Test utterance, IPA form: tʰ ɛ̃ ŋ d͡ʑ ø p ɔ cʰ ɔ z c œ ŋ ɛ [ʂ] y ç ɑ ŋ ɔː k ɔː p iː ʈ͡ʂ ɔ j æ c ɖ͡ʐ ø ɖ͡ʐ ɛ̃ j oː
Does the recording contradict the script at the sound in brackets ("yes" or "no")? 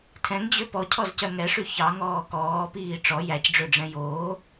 no